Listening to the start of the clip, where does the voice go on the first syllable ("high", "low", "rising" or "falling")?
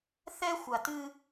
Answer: high